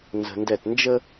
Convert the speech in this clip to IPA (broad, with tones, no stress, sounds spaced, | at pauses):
n z ə̤˨ n d ɛ˦˨ t n d͡ʒ ə˦